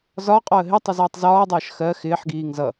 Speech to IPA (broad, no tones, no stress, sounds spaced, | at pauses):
z ɒ qʼ ɔ ə̯ ɦ ɪ tˤ ɛ z ʌː tˤ z ɒː dˤ ʌː ʃ x ɜ x ɪː ħ ɡ iː ŋ z ʌ